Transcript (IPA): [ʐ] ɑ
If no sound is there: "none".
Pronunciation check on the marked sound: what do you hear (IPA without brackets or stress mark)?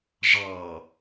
ʐ